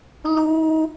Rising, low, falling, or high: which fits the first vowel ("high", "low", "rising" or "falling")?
high